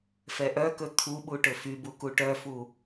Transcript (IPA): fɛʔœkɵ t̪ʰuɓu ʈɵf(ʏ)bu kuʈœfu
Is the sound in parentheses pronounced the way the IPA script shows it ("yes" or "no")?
no